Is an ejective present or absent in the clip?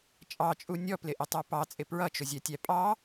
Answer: present